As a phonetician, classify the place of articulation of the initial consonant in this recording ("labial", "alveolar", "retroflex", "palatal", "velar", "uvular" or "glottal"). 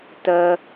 alveolar